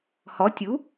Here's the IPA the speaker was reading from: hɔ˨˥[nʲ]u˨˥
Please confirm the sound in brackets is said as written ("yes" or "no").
no